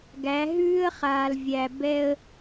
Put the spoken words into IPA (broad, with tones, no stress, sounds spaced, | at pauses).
ɡ æ˨˦ ɦ ʉː˦ ə̯ χ aː˨ l vʲ æ˨ b ɛ˦ ə̯